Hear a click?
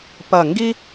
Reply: no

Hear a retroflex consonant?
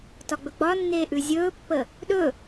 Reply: no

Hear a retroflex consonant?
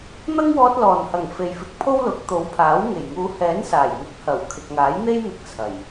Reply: no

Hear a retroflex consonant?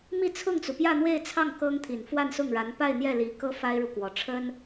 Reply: yes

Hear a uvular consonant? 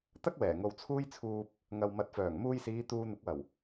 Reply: no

